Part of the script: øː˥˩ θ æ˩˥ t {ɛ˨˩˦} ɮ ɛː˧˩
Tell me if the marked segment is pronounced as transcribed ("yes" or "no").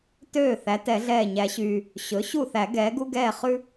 yes